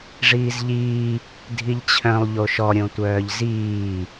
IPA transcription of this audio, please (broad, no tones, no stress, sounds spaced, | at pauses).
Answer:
ʐ iː z ʎ iː | dʱ i ʎ t͡ɕʰ œ̃ lˠ ʎ o ʃ ɔ ɾʲ õ tʷ œː ʎ z iː